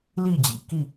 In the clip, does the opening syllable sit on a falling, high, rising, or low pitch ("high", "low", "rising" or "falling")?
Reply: falling